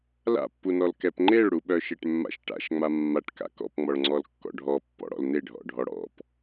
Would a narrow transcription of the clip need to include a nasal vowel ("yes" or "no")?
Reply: no